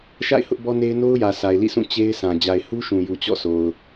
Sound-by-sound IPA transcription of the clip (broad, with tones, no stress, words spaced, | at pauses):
ʃa̰˦˨ɪ̯ hʊ˦ʔbɔ˦ne˦ɪ̯ no˦ʊ̯jä˨ sʰa˨ɪ̯lḭ˦˨sʰũ˦˨ t͡ɕe˦ɪ̯sã˨ d͡ʑa˨ɪ̯hu˦ʃũ˨ju˨ t͡ɕɔ̰˦˨sʰo˨ʊ̯